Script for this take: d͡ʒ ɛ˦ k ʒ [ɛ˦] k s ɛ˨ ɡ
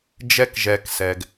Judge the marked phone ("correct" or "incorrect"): incorrect